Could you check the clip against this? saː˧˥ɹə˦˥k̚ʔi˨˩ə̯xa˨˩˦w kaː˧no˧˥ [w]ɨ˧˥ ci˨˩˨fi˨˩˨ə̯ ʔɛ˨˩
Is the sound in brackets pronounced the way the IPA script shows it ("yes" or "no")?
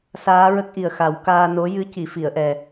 no